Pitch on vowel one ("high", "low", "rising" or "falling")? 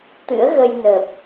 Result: rising